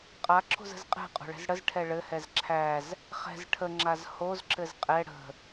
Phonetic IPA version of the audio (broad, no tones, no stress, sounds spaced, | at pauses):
qʼ a ǁʰ o̤ z ə̤ z qʼ ɛ̤ qʼ o̤ ɭ ɛ̤ z ɽ ə z ʈʰ ɛ ɭ ɘ h ɛ z ǁʰ æ z | χ ɛ̤ z ʈʰ ə ŋ͡ǁ a z h o z ǁ ɘ z qʼ ɛ ɽ ə̤